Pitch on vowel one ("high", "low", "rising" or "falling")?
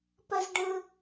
high